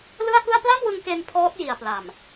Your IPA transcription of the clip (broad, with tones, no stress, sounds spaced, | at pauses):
l ɯ˥˩ a̯ k ɯ˥˩ a̯ p l a˥˩ m w ɯ˧ ŋ k e˧ n pʰ ɔː˦˥ t̚ j i˨˩ a̯ p l a˨˩ m